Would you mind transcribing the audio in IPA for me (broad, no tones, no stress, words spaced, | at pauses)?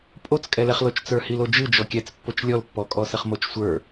pʼot͡skʼɛlɛχlot͡ʃ t͡sə˞hilod͡ʒɨ d͡ʒɔkʲɛt͡spːot͡ʃ lʲɔlpːɔkʼɔsɘχ mot͡ʃsʷə˞